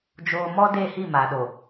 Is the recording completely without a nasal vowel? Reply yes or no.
yes